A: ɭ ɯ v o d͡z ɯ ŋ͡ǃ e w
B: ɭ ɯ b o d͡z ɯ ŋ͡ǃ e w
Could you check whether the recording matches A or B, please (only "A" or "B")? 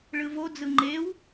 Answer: A